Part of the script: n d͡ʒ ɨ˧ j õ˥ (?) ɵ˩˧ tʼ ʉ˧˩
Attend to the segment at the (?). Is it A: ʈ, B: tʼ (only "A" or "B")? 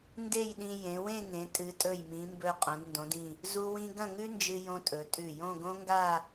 B